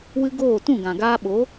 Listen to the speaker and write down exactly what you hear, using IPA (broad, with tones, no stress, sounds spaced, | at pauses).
w ɨ˦ ɡ oː˦˨ t ũ˦˨ ɡ ã˨ ɡ aː˧ ɓ o˨˦